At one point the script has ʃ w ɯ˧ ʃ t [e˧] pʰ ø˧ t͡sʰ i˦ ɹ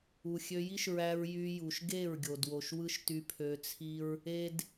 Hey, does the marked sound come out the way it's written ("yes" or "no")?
no